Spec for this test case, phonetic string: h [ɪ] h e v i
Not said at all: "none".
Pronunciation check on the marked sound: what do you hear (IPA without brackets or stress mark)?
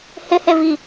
ɪ